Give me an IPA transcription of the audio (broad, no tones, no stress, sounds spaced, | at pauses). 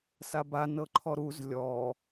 s a b a n ɤ ǃʰ ɔ ɾ u z lʲ ɔ